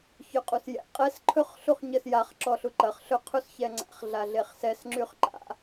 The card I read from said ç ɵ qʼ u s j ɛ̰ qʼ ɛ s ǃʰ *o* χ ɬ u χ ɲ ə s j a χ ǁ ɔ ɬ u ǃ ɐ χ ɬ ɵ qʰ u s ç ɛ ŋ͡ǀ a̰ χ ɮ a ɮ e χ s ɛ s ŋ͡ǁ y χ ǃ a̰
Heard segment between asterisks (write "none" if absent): ɵ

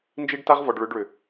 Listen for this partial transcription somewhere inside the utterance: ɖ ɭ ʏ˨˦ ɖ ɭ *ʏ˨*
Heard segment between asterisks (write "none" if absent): ʏ˨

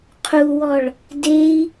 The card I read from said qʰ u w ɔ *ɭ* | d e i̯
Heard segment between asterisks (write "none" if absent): ɭ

